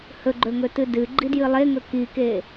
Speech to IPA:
hɵɡ͡ǃɵŋɵtɨ dɨɡ͡ǃidjɨ lˠeŋɵ kike

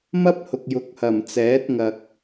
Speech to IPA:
mɐ˥p̚hʊ˨k̚jʊ˨˥k̚hɐ˨˩m t͡sɛː˨˥t̚ŋɐ˨k̚

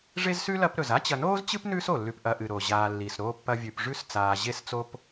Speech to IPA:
ʐe˥zsʉ˥lɐ˦pɾɵ˩z a˥t͡ɕɐ˨noː˥zt͡ɕɨ˥p nʉː˥so˩lːʉ˨p ʔɐ˨ʔɨ˩ ɾo˩ ʑaː˨lːi˩sɾoː˦pːɐ˦ vʲʉ˨pʐʉ˦s t͡saː˨ʑe˦st͡so˦p

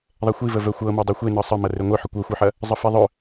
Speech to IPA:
ðˤɛxʷivə vœxʷɤmɤ dˤœxʷenɤ sˤəmɐ reŋʷœħə kʷɤxʷɤħɐ | zˤəfiðˤœ

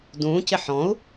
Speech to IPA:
dũːcɪ ħɔ̃u̯

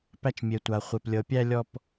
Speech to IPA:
pæ˧t͡ʃmʲe˩tʷa˩χʷe˩p lʲɤ˩pʲæ˧lʲɔ˧p

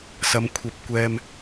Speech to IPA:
sɐ˨˧mkʷʰɐ˧p̚kʷɛː˧m

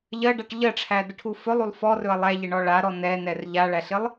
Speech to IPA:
ʎɜɖaʈ ʎɜʈ͡ʂʰædəʈʰu fɵlˠulˠ fɔrɵɐ̯ lˠæʎɪɳɔ ɭaɾɔ nɛnɛr ʎaɭæɬɪlˠ

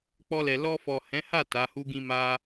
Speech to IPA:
k͡pɔ˧lɛ˨ lɔ˧fɔ˨hɛ̃˨˦ha˦˨ ta˨˦hu˦ɡĩ˦ ma˦

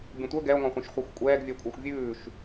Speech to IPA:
bʲũtʷœ ɡɛo̯ŋɔ̃χʷœ̃ʃχʷœxʷ kʷʼɛːɡ vʲœkʷʼɤxʷvʲʉːʃ

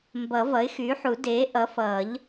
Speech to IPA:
mbʌ˨˩˦ vʌ˩˥ɪ̯xyː˩˥ħu˨˩˦ deː˩˥ ʔʌ˩˥fʌː˨˩˦ʎ

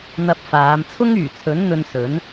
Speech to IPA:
n̪ɐ˧p̚faː˨˧m t͡sʰʊ˥ŋyː˨˩t͡sʰɵ˨˥n n̪ɵ˧nsɵ˨˥n

